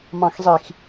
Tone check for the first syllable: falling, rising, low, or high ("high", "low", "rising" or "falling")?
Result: low